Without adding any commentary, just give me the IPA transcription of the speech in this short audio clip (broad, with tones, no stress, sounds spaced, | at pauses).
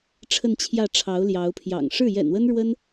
ʈ͡ʂʰ ə˥˧ n t͡ɕʰ j ä˥˩ ʈ͡ʂʰ ɑ˧˥ ʊ̯ l j ɑ˧˥ ʊ̯ pʰ j ɑ̰˨˩ ŋ ʂ ɻ̩˥˩ j ɛ̰˨˩ n w ə˥ n ɻ w ə˥ n